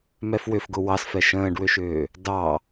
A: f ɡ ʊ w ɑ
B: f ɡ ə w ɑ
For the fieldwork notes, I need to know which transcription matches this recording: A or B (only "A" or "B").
A